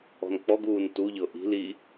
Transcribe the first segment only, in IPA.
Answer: ɔ̤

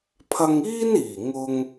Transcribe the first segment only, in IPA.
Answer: pʰ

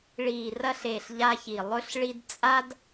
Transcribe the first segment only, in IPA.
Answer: ɭ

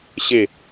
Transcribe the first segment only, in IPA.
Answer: ɕ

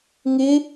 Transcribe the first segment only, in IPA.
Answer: ŋ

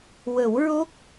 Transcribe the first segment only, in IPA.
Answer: w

